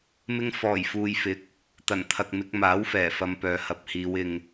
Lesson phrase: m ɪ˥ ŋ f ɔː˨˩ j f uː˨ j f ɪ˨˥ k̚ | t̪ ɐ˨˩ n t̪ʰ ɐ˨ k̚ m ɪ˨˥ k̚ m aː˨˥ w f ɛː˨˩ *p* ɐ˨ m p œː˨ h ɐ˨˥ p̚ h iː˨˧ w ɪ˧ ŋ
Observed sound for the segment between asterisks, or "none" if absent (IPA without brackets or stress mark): f